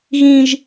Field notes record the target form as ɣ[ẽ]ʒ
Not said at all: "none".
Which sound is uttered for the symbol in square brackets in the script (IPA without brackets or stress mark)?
ĩ